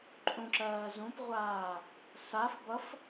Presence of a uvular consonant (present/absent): present